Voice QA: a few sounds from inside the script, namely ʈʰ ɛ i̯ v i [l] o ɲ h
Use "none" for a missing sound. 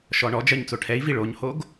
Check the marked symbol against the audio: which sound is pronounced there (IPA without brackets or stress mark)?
ɭ